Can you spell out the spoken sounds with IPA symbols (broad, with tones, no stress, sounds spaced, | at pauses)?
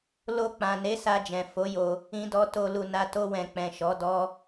l o˧ k͡p ã˨ n e˨˦ s a˧ d͡ʒ ɛ̃˨ f o˨˦ j o˧ | ĩ˧ d ɔ˧ t o˨ l u˨ n a˧ t o˧ w ɛ̃˨ k͡p ɛ̃˨ ʃ ɔ˨˦ d ɔ˦